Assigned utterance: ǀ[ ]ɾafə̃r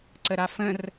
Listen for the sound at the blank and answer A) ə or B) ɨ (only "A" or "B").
A